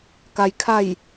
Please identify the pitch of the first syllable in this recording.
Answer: low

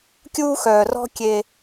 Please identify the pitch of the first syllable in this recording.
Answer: high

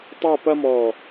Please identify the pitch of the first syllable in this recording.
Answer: falling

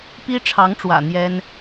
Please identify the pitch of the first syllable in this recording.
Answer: high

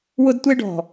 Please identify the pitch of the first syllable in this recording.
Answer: high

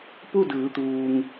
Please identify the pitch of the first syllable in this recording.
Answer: falling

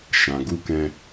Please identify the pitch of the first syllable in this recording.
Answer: low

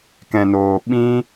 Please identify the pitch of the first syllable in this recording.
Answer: low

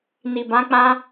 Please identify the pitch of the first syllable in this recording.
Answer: low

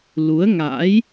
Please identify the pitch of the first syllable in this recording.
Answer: rising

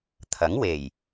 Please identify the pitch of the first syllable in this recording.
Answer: rising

